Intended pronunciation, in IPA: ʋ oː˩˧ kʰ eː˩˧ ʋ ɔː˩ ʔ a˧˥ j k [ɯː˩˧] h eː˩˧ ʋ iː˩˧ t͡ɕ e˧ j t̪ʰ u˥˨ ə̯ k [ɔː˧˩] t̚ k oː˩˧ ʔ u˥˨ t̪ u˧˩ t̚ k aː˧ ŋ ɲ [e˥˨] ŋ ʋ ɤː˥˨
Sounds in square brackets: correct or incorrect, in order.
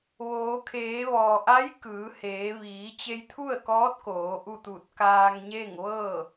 correct, incorrect: ɔː˧˥, correct

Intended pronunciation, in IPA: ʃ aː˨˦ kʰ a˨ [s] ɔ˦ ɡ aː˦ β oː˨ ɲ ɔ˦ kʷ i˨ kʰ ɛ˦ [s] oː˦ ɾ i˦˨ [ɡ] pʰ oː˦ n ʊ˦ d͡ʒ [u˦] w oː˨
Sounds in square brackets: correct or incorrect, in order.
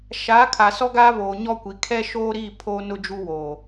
correct, incorrect: ʃ, incorrect: none, correct

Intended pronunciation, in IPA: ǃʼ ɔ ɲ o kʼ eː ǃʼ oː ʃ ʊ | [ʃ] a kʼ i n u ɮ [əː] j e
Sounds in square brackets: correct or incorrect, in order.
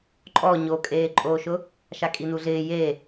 correct, incorrect: ɪː

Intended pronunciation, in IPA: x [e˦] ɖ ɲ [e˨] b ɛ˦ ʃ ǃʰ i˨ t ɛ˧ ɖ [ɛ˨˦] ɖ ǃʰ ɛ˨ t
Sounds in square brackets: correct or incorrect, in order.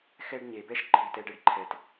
incorrect: ɛ˦, correct, incorrect: ɛ˦

